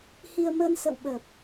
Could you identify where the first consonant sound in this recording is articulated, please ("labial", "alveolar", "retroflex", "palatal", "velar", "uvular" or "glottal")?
glottal